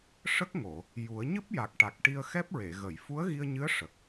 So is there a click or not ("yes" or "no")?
no